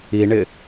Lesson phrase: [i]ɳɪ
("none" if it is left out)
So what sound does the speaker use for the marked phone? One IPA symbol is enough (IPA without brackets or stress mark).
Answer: i